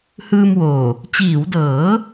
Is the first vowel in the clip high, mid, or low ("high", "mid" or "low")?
high